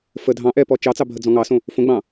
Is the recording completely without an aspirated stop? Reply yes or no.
yes